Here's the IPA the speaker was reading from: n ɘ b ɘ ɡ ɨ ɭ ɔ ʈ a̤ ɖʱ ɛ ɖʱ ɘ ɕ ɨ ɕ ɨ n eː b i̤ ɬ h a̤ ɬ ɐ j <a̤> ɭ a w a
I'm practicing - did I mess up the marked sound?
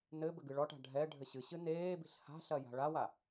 no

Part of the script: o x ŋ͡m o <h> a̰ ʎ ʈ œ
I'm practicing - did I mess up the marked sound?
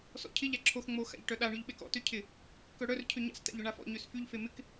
yes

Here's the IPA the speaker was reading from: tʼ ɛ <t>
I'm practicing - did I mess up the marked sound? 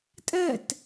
no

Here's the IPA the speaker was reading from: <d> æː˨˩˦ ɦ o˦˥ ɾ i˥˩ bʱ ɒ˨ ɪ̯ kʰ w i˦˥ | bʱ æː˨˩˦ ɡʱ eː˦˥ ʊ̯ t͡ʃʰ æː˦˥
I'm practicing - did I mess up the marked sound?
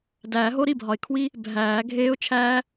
no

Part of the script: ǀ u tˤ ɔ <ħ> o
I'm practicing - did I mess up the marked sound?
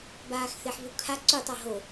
yes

